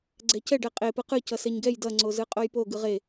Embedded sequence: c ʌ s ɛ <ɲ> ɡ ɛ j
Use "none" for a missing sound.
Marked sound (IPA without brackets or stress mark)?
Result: ɲ